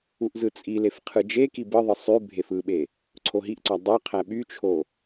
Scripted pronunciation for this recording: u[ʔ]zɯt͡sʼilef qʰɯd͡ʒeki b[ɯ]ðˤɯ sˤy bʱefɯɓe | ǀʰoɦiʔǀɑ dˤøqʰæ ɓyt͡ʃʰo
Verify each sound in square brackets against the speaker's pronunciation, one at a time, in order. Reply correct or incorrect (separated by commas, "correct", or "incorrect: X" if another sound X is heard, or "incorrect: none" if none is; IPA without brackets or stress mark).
correct, correct